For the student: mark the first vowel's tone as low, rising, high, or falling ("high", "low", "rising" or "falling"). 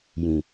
low